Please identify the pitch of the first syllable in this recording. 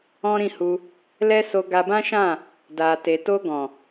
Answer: high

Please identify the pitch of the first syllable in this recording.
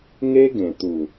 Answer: high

